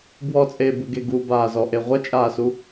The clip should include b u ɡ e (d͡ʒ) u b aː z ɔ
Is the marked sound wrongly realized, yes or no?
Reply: yes